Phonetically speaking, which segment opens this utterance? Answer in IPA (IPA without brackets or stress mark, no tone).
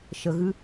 ʃ